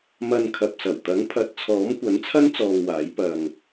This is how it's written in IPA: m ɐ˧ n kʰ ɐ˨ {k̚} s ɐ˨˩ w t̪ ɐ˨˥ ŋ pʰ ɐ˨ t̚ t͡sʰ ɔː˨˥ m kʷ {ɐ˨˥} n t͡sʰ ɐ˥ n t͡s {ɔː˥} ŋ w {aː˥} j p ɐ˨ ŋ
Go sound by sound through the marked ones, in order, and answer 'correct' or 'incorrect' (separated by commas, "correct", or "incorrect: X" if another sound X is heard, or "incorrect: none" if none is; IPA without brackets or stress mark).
incorrect: p̚, correct, incorrect: ɔː˧, incorrect: aː˨˥